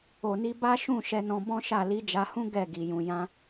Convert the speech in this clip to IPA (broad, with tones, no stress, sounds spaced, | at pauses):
o˨ n i˧ b a˦ ʃ ũ˦˨ ʃ ɛ˧ n ɔ̃˧ b ɔ̃˦ ʃ a˦˨ l i˨˦ d͡ʒ a˧ h ũ˦ ɡ ɛ˦˨ ɡ i˨ j ũ˨ j ã˧